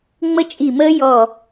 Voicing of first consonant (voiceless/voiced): voiced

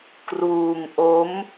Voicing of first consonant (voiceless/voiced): voiceless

